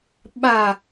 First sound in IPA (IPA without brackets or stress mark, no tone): ɓ